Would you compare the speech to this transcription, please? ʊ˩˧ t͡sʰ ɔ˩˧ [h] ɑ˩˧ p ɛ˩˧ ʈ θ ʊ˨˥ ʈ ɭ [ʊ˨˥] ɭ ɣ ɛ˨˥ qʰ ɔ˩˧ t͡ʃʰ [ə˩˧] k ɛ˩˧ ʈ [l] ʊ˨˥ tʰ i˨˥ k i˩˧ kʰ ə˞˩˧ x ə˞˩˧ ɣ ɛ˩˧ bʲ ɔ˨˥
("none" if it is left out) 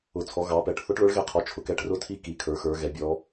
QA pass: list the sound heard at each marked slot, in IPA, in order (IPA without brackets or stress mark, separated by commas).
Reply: ɣ, ʊ˨˥, ʊ˩˧, r